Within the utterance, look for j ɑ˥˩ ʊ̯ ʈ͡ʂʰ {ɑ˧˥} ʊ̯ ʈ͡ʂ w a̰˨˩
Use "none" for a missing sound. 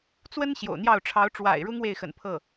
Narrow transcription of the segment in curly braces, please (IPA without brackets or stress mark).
ɑ˧˥